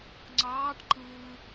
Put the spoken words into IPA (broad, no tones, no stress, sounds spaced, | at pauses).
ŋ͡ǀ ɑː ʈ ǃ ɯː